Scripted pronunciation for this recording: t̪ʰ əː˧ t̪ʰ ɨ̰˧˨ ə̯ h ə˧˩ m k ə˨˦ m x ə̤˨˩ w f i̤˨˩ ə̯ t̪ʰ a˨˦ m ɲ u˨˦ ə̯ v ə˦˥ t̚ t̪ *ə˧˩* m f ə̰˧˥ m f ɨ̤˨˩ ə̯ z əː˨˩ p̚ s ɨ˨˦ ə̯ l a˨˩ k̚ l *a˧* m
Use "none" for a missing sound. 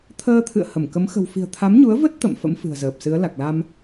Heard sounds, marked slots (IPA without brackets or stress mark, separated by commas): ə̰˧˨, a˧